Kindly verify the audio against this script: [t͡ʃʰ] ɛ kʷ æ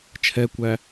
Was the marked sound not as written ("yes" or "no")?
no